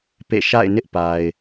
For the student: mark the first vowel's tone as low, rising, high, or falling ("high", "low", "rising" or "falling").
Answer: falling